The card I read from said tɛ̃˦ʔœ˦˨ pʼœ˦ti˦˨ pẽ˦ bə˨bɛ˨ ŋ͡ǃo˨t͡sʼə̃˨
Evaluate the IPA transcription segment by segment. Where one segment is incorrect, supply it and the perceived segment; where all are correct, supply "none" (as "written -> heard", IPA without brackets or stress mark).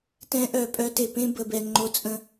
i˦˨ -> e˦˨